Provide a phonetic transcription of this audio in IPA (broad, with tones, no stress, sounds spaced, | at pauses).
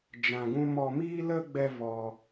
d͡ʒ ã˧ ɡ ũ˦ m ɔ˧ m iː˦ l ə˦ ɡ͡b ɛ˦ v ɔ˧